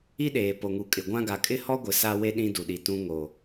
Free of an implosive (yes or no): no